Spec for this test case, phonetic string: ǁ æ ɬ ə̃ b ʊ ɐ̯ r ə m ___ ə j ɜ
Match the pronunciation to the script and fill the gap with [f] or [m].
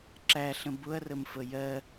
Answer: f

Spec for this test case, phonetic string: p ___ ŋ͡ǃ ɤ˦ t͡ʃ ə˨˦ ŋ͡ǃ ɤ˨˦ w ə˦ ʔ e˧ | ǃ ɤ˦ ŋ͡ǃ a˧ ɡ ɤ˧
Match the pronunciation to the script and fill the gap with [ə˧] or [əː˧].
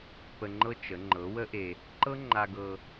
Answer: ə˧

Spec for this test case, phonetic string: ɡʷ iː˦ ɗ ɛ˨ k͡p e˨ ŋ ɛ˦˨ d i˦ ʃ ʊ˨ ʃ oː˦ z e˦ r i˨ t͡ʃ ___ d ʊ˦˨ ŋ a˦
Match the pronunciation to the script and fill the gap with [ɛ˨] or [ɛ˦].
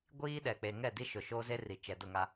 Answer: ɛ˨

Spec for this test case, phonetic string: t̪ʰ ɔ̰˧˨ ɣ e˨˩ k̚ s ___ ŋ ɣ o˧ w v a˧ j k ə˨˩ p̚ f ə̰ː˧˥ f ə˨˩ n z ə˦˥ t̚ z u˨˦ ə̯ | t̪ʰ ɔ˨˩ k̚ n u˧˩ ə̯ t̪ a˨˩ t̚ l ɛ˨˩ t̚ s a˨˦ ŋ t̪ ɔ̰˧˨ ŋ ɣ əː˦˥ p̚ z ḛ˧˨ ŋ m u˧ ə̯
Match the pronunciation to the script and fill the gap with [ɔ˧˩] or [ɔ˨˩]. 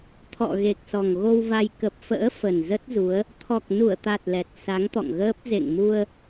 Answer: ɔ˨˩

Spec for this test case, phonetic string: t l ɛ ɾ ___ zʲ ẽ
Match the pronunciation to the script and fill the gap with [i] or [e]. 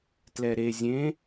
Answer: e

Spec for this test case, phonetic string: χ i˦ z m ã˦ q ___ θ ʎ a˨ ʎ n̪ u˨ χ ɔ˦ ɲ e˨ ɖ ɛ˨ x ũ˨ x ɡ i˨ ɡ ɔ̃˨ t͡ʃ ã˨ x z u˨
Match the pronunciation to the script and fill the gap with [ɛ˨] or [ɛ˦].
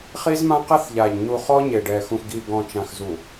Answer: ɛ˦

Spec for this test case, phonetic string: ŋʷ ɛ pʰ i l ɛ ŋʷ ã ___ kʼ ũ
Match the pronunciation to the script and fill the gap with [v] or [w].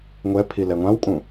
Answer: w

